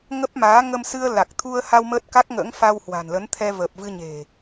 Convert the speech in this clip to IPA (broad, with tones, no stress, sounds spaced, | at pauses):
ŋ ə˦˥ p̚ m aː˨˦ ŋ ə˧ m s ɨ˧ ə̯ l a˨˩ k̚ t̪ʰ u˧ ə̯ h a˧ w m əː˦˥ t̚ k a˦˥ k̚ ŋ ə̰ː˧˥ ŋ f a˧ w h w a̤˨˩ n l ə˨˦ n t̪ʰ ɛ˧ v əː˨˩ p̚ v ɨ˧ ɲ e̤˨˩